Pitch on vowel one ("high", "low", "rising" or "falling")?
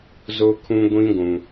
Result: high